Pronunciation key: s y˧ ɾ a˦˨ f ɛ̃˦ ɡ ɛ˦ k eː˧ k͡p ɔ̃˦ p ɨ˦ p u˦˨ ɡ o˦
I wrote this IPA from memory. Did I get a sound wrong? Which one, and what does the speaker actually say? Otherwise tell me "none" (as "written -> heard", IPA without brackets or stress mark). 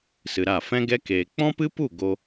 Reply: y˧ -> ɨ˧